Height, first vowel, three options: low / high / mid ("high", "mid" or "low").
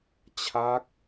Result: low